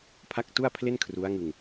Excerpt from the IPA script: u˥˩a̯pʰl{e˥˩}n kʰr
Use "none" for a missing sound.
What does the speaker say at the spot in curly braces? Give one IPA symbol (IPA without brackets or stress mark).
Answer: e˥˩